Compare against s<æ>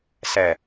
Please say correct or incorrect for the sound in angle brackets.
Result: incorrect